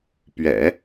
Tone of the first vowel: low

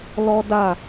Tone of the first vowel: high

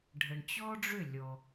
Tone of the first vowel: low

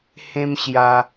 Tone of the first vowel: high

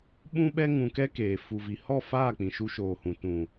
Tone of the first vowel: high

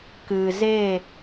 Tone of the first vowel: low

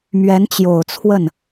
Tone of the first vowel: rising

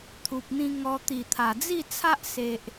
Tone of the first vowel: low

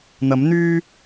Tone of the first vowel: rising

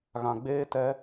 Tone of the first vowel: low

